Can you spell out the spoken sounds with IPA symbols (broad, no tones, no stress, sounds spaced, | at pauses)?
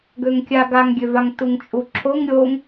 ɡ ø ŋ kʲ a ɡ a ŋ ɡʲ ø v a ŋ t u ŋ t͡ʃʼ u ǁʰ o ŋ ɾʲ o ŋ